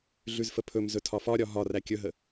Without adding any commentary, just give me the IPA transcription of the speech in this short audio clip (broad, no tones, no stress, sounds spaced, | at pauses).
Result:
ɮ ʉ z f ə pʰ ɵ m z ɵ tʰ ɒ f ɒ ɾʲ ɒ ɦ ɒ r æ kʲ ɵ ɦ ə